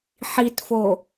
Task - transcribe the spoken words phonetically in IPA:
ħ i t f o

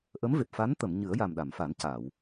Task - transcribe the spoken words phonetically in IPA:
ʔ ə˧˥ m v e˨˩ p̚ f a˧˥ n t̪ ə˨˩˨ m ɲ ɨ˨˩˦ ə̯ j a˨˩ m ɗ a˨˩˨ m f a˨˩˦ n c a˨˩˨ w

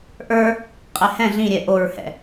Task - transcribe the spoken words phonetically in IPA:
ʔ ə˞ | qʼ ɛ h ɛ̃ ɮ ĩ ɾʲ ɛ ʔ o ɹ h ɛ̰

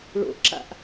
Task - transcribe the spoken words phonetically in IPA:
ɭ o̰ ʔ ǁ a̰ ʔ

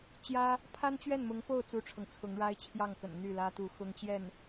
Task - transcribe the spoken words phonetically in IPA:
t͡ɕ j ä˥ | pʰ a˥ n t͡ɕ ɥ ɛ˥˩ n m ʊ˧˥ ŋ f o˥˩ ʊ̯ t͡s u˥ ʈ͡ʂʰ ɤ˨ ŋ t͡sʰ ʊ˧˥ ŋ ɻ a˥ ɪ̯ t͡ɕʰ j ɑ˥˩ ŋ k ə̰˨˩ n n̪ y˥˩ l ä˥ t̪ u˧˥ x ʊ˥ ŋ t͡ɕ j ɛ˥˩ n

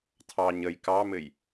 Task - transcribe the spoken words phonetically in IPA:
tʰ ɑ ɲ ə j k ɑ m ɘ j

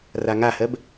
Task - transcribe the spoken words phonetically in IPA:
r a ŋ a h ɜ b

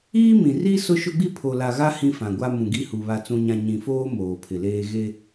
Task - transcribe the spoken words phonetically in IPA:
iː˦ m ĩ˨ r i˦ s ʊ˦ ʃ ʊ˦ ɡ͡b i˦ pʰ o˨ l a˨ ɣ a˦ h ĩ˦ f ã˨ ɡʷ a˦ m ũ˨ ɡ i˦ h u˨ β a˨ t͡s ũ˨ ɲ ã˨ ɲ ĩ˨ f oː˦ m oː˨ pʰ ɪ˨ l eː˦ ɣ e˦

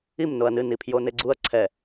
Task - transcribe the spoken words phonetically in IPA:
i m n o ɐ̯ n ɨ n i pʰ j o n e ɡ͡ǀ u ɐ̯ ǀʰ ɛ

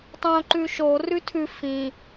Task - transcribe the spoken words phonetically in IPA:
tˤ õ ǃ ʉ ʃ o r ʉ tʰ ʉ f ĩ

